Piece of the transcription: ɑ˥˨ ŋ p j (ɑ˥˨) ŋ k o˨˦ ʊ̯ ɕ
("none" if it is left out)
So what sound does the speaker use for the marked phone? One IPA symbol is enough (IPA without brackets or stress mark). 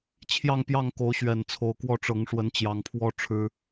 ɑ˥˨